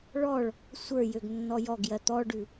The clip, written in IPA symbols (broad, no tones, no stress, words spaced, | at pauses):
ɭɔɭ | sʷə˞ jøɡnːɔjɔɡjɜ t̪ɔɖʉ